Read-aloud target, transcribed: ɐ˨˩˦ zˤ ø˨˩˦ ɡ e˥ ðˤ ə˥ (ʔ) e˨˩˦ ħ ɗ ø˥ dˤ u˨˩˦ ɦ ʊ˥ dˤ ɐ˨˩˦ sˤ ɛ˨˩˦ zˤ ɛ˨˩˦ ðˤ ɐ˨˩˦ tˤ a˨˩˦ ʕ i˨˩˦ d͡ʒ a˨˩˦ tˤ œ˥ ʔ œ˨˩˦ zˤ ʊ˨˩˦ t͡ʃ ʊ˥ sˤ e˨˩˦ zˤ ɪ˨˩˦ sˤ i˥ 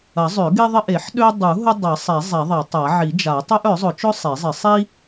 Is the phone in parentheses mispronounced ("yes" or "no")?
no